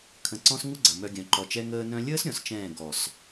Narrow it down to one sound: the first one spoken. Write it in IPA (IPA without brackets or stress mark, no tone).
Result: kʰ